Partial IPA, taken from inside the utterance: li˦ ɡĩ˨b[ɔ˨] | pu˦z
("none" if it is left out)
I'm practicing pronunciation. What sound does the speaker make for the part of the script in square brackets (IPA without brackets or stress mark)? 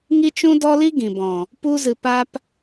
ɔ̃˨